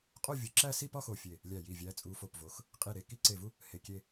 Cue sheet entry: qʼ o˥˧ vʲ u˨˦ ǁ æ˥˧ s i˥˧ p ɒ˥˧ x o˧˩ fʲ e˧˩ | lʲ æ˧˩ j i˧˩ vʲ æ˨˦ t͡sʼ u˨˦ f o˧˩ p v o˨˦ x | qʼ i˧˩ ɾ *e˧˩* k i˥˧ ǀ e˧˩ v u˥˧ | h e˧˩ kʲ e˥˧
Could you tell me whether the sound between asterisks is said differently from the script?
no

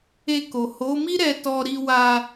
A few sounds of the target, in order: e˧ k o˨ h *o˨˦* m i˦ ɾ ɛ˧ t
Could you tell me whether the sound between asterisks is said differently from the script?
no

